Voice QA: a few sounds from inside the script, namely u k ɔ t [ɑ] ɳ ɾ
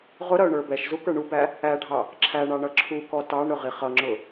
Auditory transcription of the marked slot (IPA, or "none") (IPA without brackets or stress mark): ɑ